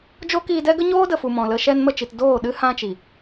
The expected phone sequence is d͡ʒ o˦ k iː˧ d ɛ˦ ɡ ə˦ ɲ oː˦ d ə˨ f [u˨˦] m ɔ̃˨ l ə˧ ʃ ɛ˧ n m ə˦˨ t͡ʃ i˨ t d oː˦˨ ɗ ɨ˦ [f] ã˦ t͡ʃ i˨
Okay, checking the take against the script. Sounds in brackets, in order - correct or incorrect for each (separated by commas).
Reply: incorrect, incorrect